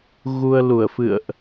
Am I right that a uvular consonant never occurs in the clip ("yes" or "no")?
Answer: yes